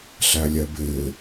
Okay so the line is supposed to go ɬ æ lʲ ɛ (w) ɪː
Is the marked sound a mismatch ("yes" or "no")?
yes